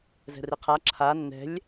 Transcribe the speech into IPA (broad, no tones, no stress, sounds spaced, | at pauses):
z ɛ̤ r i qʰ a ǁʰ a nː ɛ̤ lʲ